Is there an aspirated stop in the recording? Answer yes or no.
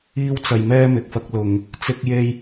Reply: no